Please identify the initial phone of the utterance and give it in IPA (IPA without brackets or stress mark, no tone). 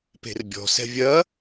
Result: p